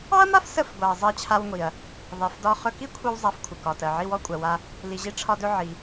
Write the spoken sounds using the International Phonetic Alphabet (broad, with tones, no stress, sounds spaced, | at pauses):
ɑ˥ ɐ̯ m a˥ f s ə˧ f ɡʷ a˩ ɐ̯ zˤ ɜ˧ t͡ɕʰ a˧ w ŋʷ i˩ ɐ̯ | ðˤ i˩ f d ɒ˧ χ ɵ˧ k i˥ kʷʰ i˧ w zˤ a˧ f kʷʰ ə˩ k ɒ˩ t ɜ˩ ʕ i˧ w ɔ˧ kʷʼ ɜ˩ w a˧ | l i˩ ʑ i˧ ʈ͡ʂʰ ɒ˧ d ɵ˧ ʕ i˩